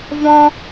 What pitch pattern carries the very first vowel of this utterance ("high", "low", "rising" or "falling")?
high